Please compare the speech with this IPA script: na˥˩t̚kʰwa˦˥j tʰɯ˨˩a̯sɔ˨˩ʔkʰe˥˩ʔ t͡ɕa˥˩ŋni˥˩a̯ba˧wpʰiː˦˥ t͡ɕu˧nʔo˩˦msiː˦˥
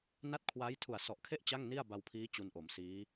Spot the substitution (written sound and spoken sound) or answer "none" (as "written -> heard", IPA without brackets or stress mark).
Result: ɯ˨˩ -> u˨˩